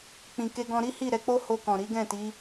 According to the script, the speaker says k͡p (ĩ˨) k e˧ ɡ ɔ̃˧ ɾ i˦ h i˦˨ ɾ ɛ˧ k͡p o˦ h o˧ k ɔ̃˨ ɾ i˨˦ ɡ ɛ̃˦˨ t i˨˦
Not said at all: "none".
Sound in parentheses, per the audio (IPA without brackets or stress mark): ĩ˨